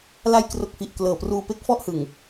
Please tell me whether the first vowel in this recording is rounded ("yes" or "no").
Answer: no